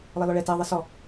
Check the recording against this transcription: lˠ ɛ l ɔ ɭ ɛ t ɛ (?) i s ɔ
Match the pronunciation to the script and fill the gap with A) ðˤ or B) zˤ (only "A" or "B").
A